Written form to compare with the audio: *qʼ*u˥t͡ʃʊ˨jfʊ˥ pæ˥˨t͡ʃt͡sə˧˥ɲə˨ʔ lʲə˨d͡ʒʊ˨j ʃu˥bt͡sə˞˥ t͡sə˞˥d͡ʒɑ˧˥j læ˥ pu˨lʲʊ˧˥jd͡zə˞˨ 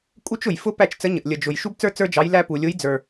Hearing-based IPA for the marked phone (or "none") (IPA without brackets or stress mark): kʼ